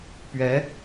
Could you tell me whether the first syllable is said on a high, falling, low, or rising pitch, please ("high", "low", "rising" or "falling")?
rising